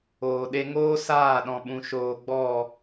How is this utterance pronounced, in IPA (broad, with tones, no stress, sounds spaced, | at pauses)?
oː˨ ɗ e˧ ŋ oː˦ s aː˦˨ ɗ ɔ̃˨ ɓ ũ˨ ʃ oː˨ ɡ͡b ɔ˦˨